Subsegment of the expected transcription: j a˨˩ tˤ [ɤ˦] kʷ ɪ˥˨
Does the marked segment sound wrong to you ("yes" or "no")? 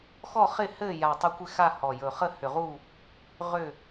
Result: yes